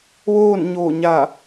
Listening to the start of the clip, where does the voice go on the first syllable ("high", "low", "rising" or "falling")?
falling